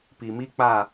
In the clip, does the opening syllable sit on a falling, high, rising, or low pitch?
low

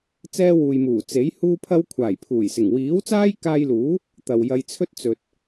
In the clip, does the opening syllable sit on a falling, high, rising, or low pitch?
high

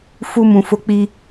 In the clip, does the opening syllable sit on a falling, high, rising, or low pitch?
high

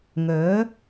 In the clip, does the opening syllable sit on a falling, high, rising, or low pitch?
rising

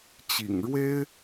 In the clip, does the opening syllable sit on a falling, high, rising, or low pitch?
low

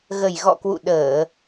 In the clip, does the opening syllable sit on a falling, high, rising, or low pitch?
low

